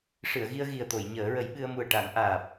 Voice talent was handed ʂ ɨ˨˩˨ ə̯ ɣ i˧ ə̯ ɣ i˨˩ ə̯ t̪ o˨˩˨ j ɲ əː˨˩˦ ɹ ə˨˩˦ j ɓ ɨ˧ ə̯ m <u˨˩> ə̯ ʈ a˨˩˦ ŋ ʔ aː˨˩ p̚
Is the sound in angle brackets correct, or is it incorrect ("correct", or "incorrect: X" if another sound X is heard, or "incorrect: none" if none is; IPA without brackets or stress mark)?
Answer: correct